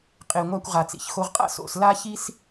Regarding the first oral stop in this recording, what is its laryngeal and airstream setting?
ejective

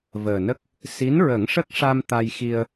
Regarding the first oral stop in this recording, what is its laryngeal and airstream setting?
plain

